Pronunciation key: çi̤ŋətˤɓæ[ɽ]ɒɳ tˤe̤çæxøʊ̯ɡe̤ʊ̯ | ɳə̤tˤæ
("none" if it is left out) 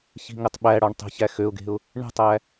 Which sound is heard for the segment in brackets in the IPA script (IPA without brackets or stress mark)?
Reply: ɽ